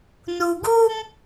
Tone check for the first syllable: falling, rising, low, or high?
low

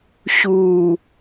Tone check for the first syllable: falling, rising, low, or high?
low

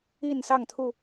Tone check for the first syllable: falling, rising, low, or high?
falling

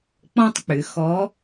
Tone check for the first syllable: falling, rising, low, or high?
high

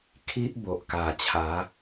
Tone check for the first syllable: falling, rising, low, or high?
high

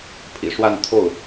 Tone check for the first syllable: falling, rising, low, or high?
low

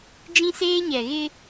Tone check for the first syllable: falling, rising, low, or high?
high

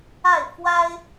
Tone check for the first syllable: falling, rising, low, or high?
falling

